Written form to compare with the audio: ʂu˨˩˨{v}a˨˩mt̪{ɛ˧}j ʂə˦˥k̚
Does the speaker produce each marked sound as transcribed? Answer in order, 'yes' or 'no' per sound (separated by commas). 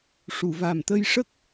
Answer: yes, no